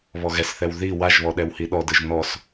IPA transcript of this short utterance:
β ɔ ɣ ɛ s θ ɛ w ð i w a ʒ β ɔ ɗ ɛ w h i ɗ ɔ d ɯ ʒ n ɔ s

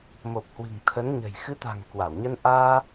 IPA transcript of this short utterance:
m o˨˩ p̚ h w ɨ̤˨˩ ŋ t̪ʰ ə˨˦ n ɲ ə̤˨˩ j x ɨ˨˦ t̪ a̤˨˩ ŋ k w a˧˩ w ɲ ə˧ n ʔ aː˧

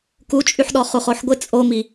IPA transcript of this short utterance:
k u t͡ʃʼ y ħ ɗ ɔ χ u χ o ħ ɡʷ ɪ t͡sʼ o m i

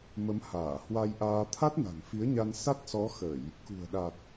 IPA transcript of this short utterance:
m ə˨˦ m h aː˧˩ h w a˧ j ʔ aː˧ t̪ʰ a˦˥ t̚ n a̤˨˩ ŋ f i˨˦ ə̯ ɲ a˧ n s a˦˥ t̚ s ɔ˨˦ x ə˧˩˨ j | k ṳ˨˩ ə̯ ɗ a˨˩ t̚

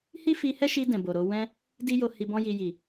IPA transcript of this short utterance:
h i˦ f i˧ h ɛ˦ ʃ i˧ d ɛ̃˨ b o˨ ɾ o˧ w ɛ̃˦ | d i˦ j o˧ h i˧ b ɔ̃˦ j i˧ j i˨

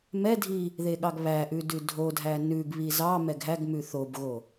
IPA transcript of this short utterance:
m ɛ dʱ i | ð e ɠ ɑ ɡ β æ ʔ ʉ d ʉ dʱ o dʱ æ n ʉ ɡ β i z ɑ m ɛ ɡ ɦ æ ɡ m ʉ θ o b ɣ o

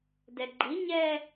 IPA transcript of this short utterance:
d ɛ ɡ͡ǃ i ɲ ɛ

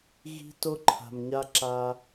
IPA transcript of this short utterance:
ɣ i̤˦ t o˦ ǃʰ a̤˨ m ɲ a˦ ǁ a˦

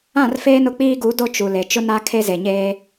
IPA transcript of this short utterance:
ã˦˨ r f eː˦ n ʊ˨ k͡p iː˦ ɡ u˨˦ d o˦ t͡ʃ u˨ l e˨ t͡ʃ ʊ˦ n a˦ kʰ e˦ z e˨ ɲ eː˦

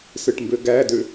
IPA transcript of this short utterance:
s ɯ ʈ m b ø ɡ æ d ø

